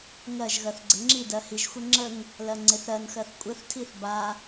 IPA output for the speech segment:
ŋ ɜ ʒ ɣ ɜ θ ɡ͡ǀ ə ŋ͡ǁ i d ɜ h i ʒ xʷ ɛ ŋ͡ǁ ə ŋ | l ɜ ŋ͡ǀ e θ ɾ ɜ n x ɜ θ kʷʼ ɘ θ tʰ i θ b a

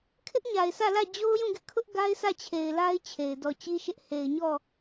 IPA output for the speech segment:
kʰ ɪ˦ ʔ ɲ a˨ ɪ̯ s ä˦˨ l ä˦˨ d͡ʑ o˦ ʊ̯ j ũ˦˨ ɡ ɪ˦ ʔ kʰ ʊ˦ ʔ ɡ a˦ ɪ̯ s ä˦˨ t͡ɕʰ e˨ ɪ̯ l a˦ ɪ̯ t͡ɕʰ e˨ ɪ̯ d ɔ˨ t͡ɕ i˦ ʃ ɪ˦ ʔ h e˨ ɪ̯ ɲ ɔ˦˨

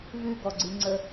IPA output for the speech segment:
v ʉ ɡ ɔ ɡ͡ǀ ɨ ŋ͡ǀ ə

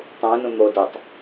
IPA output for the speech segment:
tˤ ũː n ũ n̪ o d ɨ tˤ

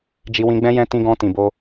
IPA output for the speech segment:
d͡ʒ i˧ w ĩ˧ ɡ͡b ɛ̃˦ j ɛ̃˦ t ĩ˧ ɡ ɔ̃˧ t ĩ˨ b o˧

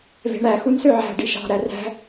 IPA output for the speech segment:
v e̤ ɳ æ x u n s ø ʕ æ̤ ɖ i ʃ ɑ̤ ɾ æ r æ̤

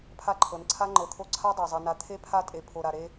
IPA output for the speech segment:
pʰ a˦ ǃʰ ɤ˨ n ǀʰ a˦ ŋ͡ǃ ɤ˨ t̪ʰ o˦ ǀʰ a˦ dˤ a˨ zˤ e˨ n a˨ t̪ʰ e˦ pʰ a˦ tʼ e˨ pʰ o˨ ɾ a˨ ɾ e˦

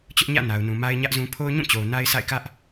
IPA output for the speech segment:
t͡ɕ ʊ˦ ʔ ɲ ä̰˦˨ n a˨ ʊ̯ n ũ˨ m a˦ ɪ̯ ɲ ä˦ ʔ z ũ˦ pʰ o˦ ʊ̯ ɲ ũ˦˨ t͡ɕ o˨ ʊ̯ n a˦ ɪ̯ sʰ a̰˦˨ ɪ̯ k ä˦ ʔ

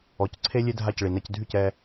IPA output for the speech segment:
ɔ˩˥ c ǀʰ e˥ lʲ e˥ dʱ a˥˩ c ɭ i˩ n ɛ˧ c dʱ y˥˩ c ɛ˧

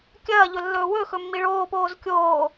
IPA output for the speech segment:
kʲ ɐː ʎ ɵ lː ɵː w ɵ x ɵ mː i ɭ oː p oː z kʲ oː

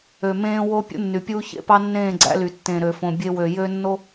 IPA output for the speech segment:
ø˨ m ẽː˦ w o˦ pʲ ṵ˦ nː y˨ pʲ uː˦ ç ḛ˦ p ɑ˦ nː ẽː˦˨ ɡ͡ǀ æ̰˦ l y˨ tː ẽ˨ ɾ ø˨ f õ˨ bʲ e˦ w ø˨ j ø˦ nː o˦

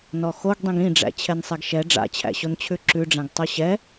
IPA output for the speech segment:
n ɔ x o ɡ dˤ ĩ ɡ ĩ ɖ͡ʐ æ̰ t͡ɕʰ ɛ n sˤ ɛ ɡ ʃ ɛ ɖ͡ʐ a̰ t͡ɕʰ æ̰ ɕ o n t͡ɕʰ ʉ ǁ ʉ ɖ͡ʐ æ̃ ɡ tˤ o ɕ ɛ

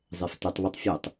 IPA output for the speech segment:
zˤ e f t ɨ tˤ β e tˤ fʲ u tˤ

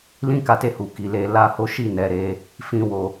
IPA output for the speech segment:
l ĩ˦ k a˧ t e˧ h u˨ k i˨ l e˧ l a˦ h o˦ ʃ i˦˨ n ɛ˨ ɾ e˨˦ | f ĩ˧ w o˧

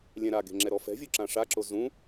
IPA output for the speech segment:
lʲ ɛ̃ ɾ a ɡ e̤ ŋ͡ǁ ɛ ɾ ɔ f ɛ̤ vʲ u ǁ ã ʂ a ǁ o z ũ

